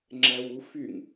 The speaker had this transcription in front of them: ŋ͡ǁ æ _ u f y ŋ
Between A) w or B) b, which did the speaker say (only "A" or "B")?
A